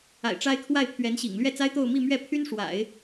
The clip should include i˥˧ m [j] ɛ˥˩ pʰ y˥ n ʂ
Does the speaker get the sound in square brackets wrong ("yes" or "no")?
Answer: yes